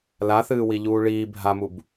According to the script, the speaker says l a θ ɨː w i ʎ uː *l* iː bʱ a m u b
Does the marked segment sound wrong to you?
yes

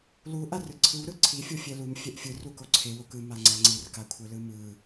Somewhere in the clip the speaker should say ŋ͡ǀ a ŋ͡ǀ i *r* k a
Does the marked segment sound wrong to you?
no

